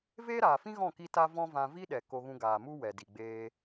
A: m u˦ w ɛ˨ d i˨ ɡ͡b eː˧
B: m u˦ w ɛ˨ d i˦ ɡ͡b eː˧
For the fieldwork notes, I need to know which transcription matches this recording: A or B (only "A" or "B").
A